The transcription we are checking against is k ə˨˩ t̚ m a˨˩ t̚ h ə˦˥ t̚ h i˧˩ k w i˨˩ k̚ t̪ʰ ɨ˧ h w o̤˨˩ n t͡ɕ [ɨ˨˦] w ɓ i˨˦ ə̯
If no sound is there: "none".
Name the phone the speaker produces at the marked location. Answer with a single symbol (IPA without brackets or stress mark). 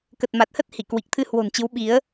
ɨ˨˦